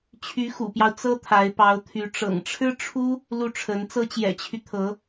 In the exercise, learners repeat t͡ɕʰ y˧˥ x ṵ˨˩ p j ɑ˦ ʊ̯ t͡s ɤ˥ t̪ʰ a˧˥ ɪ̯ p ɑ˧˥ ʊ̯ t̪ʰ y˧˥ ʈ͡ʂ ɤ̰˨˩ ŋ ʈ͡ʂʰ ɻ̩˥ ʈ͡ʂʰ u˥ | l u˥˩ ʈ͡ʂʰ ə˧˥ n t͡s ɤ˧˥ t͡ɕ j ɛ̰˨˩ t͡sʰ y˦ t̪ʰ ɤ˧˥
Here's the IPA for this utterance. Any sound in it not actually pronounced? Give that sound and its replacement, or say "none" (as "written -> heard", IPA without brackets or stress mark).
t͡sʰ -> t͡ɕʰ